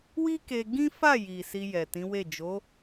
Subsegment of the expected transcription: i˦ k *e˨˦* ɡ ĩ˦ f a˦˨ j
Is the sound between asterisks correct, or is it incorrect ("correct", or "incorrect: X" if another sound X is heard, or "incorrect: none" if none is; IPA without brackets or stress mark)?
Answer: incorrect: e˧